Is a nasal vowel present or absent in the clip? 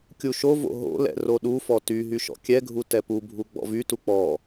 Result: absent